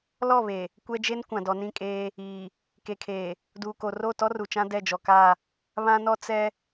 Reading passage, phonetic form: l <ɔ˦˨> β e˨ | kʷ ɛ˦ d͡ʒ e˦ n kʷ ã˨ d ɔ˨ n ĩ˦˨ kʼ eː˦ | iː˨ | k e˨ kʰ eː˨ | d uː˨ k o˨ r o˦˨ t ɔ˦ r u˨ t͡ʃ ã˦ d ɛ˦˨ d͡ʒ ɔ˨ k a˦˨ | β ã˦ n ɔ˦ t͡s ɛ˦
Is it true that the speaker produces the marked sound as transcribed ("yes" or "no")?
yes